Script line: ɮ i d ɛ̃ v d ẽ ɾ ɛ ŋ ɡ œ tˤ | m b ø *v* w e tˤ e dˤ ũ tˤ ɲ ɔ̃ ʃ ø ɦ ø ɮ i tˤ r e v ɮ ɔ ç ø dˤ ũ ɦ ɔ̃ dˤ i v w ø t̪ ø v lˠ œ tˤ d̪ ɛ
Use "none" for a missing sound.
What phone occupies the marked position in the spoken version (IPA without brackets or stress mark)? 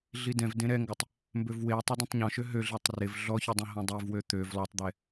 v